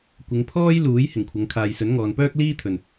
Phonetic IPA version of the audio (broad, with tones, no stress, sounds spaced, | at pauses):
kʷ ɪ˨˧ ŋ pʰ ɔː˥ j l uː˨˥ j h ɪ˨˩ ŋ kʷʰ ɐ˨˧ ŋ kʰ aː˨ j s ɵ˨˥ n ŋ ɔː˨ n p œː˥ k̚ l iː˥ t̪ʰ ɵ˨ n